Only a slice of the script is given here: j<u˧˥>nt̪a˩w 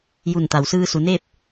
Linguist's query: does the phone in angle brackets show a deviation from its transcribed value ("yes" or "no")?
yes